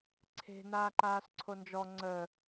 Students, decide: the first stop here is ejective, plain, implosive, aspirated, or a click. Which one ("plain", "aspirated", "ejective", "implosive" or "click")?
click